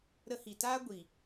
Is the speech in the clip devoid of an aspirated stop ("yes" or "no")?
yes